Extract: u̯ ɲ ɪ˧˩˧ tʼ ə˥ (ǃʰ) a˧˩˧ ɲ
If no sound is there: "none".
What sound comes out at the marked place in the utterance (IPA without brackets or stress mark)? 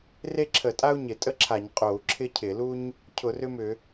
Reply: ǁʰ